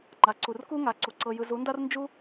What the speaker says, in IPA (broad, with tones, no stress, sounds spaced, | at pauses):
ŋ͡ǃ a˨ ǀ u˨ r k u˦ ŋ a˨ ǀ u˨ ǀ ɤ˧ j ɯ˧ z u˨˦ n d a˦ r n d͡ʒ u˦